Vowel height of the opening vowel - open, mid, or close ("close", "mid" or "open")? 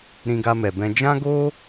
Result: close